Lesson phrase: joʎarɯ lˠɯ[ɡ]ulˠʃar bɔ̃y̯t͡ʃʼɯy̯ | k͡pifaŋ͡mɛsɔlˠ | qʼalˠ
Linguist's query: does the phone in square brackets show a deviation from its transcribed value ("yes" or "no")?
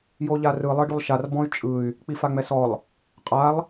yes